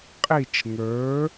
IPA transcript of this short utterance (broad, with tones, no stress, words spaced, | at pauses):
qʼi˦˨t͡ʃŋə˞˨˥